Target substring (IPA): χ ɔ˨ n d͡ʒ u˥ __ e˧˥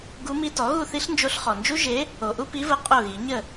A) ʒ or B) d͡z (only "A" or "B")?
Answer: A